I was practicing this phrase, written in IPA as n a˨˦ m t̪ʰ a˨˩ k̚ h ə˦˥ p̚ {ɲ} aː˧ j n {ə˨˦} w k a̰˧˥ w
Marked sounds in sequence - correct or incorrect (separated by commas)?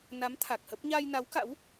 correct, incorrect